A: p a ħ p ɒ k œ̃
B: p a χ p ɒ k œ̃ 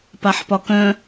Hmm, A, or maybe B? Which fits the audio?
A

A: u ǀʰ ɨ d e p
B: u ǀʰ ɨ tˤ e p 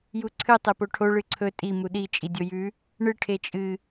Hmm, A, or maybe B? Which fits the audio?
B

